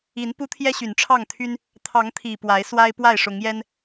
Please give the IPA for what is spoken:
i˨˦n pu˦t̪ʰjɛ˦ ɕy˨˩nʈ͡ʂʰɑ˥˨ŋt̪ʰy˦n | t̪ʰɑ˨˦ŋt̪ʰi˨˩ pwa˨˦ɪ̯ swa˦ɪ̯ pwa˥˨ɪ̯ʂʊ˨˦ŋjɛ˦n

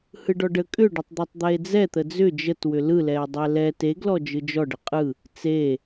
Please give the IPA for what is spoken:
hɯɖɔɖə kʼʏɖʏtˤ d̪ɛtˤd̪ɛe̯d͡zɛ t̪əd͡zʏ d͡ʒət wʏlɯlɛe̯dˤɛ lɛ teɡlɔ d͡ʒɯd͡ʒɔɖə qʼɯ | t͡se

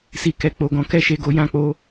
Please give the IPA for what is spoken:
si˨kɛ˨ k͡po˨ɡɔ̃˨˦ kɛ˦˨ʃe˧ɡo˧ jã˧k͡po˦

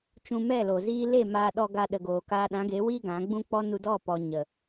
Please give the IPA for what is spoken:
t͡ʃũ˧mɛ˦˨lo˨ ziː˧ le˦˨ maː˧ɗɔ˧ ɡa˧ɗə˨ɡoː˨ kaː˧ɗã˨˦ɡe˨˦wiː˦ ɡã˨˦ɡ͡bũ˦k͡pɔ˦ nu˧dɔ˦˨pɔ˨ ɲə˨

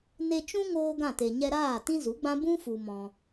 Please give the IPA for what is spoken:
ne˧t͡ʃũ˦ ŋoː˦ɡã˦˨te˨ ɲɛ˧ɾaː˦˨ tĩ˦zu˨˦ ɡ͡bã˦ bũ˦ fu˧mɔ̃˧

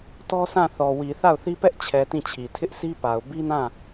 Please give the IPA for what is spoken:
tɔ˦sã˦˨θɔ˨wi˨ θa˦˨ʊ̯θi˦pɛ˦ʔt͡ɕʰɛ˨ tĩ˦˨t͡ɕʰi˨ tʰɪ˦ʔsʰi˦pa˨ʊ̯ bi˦nã˦˨

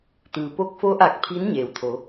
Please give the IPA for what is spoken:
t̪ɯː˩po˧k̚fo˧˥ʔa˧˩k̚ pʰiː˧˥nɲeː˩wt̪ʰo˩˧

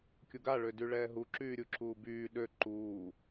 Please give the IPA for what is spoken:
kʲoɡaɭø dyɭɛːɦu ǁyːɾʲuǁuːbyː ɗø ǃuː

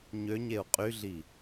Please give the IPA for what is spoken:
ɲøɲeu̯ qʼyɮi

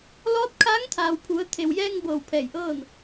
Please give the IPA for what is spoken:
lɔː˧˥t̚kʰaː˧˥ŋt̪ʰaː˩wpʰu˩˧ə̯ t̪ʰe˩wjɛː˧ŋ bɤː˧˩wpʰɛː˧˩jʔɤː˥˨n

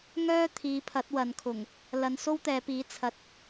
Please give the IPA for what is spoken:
ŋœː˥ t̪ʰiː˨˧pʰɐ˨˥t̚wɐ˨nkʰʊ˨˩ŋ | lɐ˨˧nso˥wt̪ɛː˨˧piː˨˥ t͡sʰɐ˨t̚

